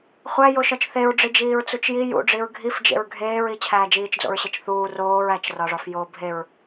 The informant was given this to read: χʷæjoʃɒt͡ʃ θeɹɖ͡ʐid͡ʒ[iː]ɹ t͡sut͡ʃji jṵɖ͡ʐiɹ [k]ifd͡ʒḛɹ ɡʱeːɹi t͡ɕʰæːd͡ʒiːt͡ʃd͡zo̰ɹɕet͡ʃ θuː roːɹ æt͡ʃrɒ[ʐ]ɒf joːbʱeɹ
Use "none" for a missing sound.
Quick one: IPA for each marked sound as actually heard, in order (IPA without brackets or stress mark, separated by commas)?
iː, ɡʱ, ʐ